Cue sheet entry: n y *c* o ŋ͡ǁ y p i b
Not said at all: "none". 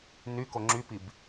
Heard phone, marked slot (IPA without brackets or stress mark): k